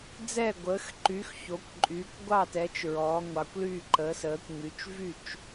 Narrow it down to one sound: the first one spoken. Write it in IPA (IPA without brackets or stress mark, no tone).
d͡z